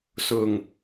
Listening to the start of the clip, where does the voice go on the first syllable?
low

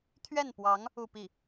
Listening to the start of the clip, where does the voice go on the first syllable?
falling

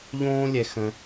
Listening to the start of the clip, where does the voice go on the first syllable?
high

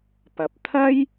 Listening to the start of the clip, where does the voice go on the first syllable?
low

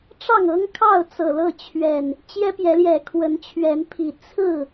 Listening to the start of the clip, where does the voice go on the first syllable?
falling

